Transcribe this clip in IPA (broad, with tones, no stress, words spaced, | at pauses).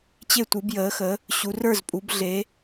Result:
t͡ɕe˥˨tʷɨ˨˦bjəː˨˦xə˨˦ | ɕu˨˦ rə˞˥˨zpʼu˨˦bɮe˨˦